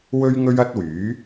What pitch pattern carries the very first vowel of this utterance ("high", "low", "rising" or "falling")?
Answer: high